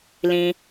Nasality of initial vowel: nasal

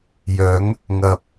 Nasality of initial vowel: oral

